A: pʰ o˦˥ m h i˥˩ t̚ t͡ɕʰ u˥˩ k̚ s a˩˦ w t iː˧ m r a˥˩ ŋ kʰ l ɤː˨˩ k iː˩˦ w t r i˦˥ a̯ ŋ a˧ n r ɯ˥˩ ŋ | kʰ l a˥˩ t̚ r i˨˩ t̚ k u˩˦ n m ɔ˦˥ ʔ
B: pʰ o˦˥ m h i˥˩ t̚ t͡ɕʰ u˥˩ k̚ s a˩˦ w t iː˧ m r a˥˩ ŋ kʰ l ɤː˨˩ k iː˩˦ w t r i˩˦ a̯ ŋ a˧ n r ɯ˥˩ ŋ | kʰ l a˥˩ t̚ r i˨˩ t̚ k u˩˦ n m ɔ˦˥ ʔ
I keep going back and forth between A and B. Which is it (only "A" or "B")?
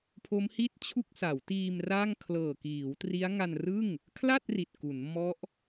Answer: A